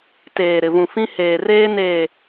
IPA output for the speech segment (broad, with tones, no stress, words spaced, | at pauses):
teː˨ɾɪ˨vũ˨fĩ˦ heː˨reː˦ neː˨